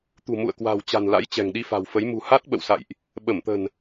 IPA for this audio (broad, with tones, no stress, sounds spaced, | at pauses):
t̪ ṳ˨˩ m ṵ˧˨ ə̯ k w a̤˨˩ w t͡ɕ a̤˨˩ n l a̰˧˥ j t͡ɕ ɛ̤˨˩ ŋ ɗ i˧ f a̤˨˩ w f ə˨˦ j m ṳ˨˩ h a˦˥ t̚ ɓ ə̰˧˨ w s a̰˧˨ j ʔ | ɓ ə˧˩ m t̪ ə̤˨˩ n